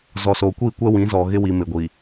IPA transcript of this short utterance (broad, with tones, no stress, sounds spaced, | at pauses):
z ɔ˨ s oː˨ kʷ iː˦˨ kʷ ɛ˦ w ĩ˨˦ z ɔ˨ ɣ ɪ˦ w i˨ m ɪ˨ ɡʷ i˨